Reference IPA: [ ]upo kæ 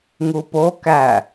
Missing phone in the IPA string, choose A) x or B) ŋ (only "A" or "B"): B